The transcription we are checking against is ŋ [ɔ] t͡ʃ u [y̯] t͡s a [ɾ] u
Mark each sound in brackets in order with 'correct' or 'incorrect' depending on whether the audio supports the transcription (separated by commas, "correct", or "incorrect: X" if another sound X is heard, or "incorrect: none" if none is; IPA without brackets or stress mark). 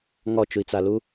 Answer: correct, incorrect: i̯, incorrect: l